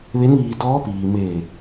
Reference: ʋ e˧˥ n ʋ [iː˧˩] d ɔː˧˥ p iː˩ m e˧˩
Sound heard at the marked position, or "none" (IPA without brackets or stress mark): iː˧